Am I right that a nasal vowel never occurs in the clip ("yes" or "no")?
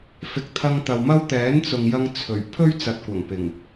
yes